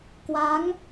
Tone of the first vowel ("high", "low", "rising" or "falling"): rising